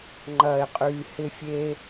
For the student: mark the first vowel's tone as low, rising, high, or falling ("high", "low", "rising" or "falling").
low